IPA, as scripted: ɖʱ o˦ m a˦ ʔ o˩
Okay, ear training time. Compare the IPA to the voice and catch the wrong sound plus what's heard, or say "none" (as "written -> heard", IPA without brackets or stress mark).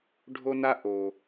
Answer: m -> n